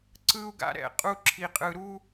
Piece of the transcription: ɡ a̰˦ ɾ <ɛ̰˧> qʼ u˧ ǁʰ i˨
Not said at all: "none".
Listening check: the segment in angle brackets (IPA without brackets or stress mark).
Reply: ɛ̰˧